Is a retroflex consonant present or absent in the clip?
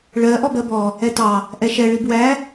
present